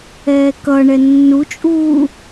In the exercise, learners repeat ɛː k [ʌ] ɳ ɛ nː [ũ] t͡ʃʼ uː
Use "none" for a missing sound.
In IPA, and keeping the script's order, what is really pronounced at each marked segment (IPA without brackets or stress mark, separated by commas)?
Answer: ʌ, u